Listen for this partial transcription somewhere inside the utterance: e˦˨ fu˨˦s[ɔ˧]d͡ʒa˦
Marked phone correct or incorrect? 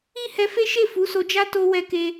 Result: incorrect